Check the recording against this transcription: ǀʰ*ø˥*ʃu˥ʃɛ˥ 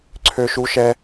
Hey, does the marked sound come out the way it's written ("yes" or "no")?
yes